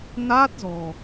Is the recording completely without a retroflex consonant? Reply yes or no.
yes